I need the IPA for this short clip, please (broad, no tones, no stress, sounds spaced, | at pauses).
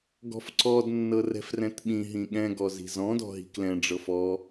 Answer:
ɡ ɔ̤ f ǀ ɔ d nː ɤ r ɛ̤ f r ɛ̃ t ɓ ĩ ɦ ĩ ɠ ɛ̃ ɡ ɔ z i̤ z ɔ̃ d ɔ̤ ɦ i̤ k l ɛ̃ ɖ͡ʐ ɤ f ɔ